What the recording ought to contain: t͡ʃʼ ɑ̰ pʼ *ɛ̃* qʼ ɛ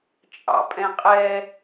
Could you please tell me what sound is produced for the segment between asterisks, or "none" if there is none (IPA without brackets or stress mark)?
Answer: ɛ̃